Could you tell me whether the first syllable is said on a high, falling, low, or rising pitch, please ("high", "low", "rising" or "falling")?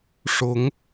rising